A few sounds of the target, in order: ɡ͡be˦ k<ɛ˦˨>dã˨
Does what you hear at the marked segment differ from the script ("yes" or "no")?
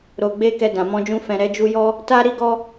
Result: yes